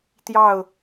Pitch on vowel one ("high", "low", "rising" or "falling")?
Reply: falling